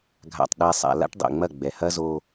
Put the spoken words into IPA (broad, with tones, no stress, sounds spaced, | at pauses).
ɡʱ a̰˨ tˤ ɗ ɛ˨ sˤ a̰˨ l a̰˦ ʈ dˤ ḛ˨ ŋ͡m ɐ˦˨ ɡ͡b ɛ˨ h ɐ˦ z o˦